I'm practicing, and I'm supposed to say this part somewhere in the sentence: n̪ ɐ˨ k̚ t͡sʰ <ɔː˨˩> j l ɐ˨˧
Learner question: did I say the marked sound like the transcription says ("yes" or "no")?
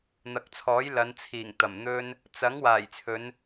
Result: no